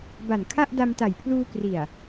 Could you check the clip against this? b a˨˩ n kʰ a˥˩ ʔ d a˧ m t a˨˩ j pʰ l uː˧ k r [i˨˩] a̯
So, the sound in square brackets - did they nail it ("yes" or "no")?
yes